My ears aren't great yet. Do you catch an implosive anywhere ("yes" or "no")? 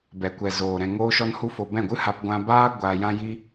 no